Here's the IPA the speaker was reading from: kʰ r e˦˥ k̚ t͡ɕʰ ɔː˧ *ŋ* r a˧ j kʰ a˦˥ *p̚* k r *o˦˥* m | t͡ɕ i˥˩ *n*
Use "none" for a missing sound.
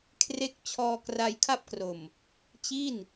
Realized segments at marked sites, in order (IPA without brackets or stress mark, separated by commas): k, p̚, o˨˩, n